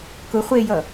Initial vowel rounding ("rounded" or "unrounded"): rounded